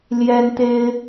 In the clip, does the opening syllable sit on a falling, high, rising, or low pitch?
high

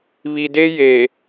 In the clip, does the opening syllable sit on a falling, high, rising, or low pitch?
low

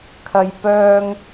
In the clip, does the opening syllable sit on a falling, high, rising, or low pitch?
high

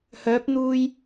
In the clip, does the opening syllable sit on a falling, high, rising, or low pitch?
rising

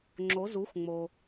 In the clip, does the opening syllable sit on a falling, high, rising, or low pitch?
rising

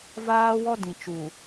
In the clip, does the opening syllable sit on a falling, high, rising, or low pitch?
high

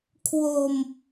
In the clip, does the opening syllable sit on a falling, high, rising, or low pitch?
low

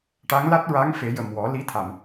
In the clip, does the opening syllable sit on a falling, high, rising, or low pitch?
rising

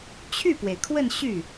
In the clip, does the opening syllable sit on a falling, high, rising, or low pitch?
falling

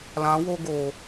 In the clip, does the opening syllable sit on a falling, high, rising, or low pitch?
rising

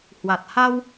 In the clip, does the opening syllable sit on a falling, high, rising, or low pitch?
low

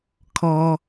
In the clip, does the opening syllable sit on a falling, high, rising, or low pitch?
low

